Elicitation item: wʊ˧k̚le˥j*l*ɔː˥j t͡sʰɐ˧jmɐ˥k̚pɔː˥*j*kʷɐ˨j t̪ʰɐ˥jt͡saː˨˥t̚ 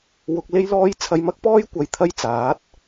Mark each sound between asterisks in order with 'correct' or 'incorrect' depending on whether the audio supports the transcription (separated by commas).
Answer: correct, correct